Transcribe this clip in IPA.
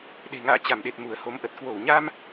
ɗ e̤˨˩ ŋ a̰ː˧˨ t͡ɕ a˧˩ m ɗ e˨˩ t̚ m u˧˩ ə̯ h o˨˦ m ʔ ə˨˩ t̚ k w o˧˩ w ɲ a˧ m

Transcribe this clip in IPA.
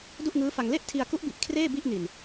d u˥˩ ʔ ŋ ɯː˦˥ f a˧ ŋ l e˥˩ ʔ tʰ i˧ a̯ k u˦˥ ʔ b i˨˩ ʔ kʰ r eː˥˩ b i˥˩ ʔ n i˨˩ n

